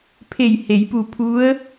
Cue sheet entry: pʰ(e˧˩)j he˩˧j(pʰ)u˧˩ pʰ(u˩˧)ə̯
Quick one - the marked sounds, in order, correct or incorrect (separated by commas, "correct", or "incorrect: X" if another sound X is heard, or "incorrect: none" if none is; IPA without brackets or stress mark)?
correct, incorrect: p, incorrect: u˧˥